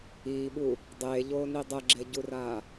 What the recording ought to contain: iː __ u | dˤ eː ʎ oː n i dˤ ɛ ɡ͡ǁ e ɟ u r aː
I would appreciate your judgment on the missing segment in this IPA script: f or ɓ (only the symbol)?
ɓ